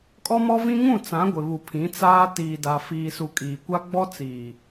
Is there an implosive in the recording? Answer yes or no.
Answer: no